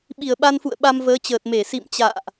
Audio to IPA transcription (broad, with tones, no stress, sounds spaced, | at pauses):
ɓ i˧˩ ə̯ ɓ a˧ n f ṵ˧˨ ə̯ ɓ a˧ m v əː˨˦ t͡ɕ əː˨˩ t̚ m e˧˩ s ḭ˧˨ m t͡ɕ a̰ː˧˨ ʔ